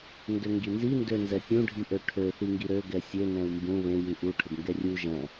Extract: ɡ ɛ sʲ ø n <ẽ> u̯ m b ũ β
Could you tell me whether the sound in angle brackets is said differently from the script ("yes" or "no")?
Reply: yes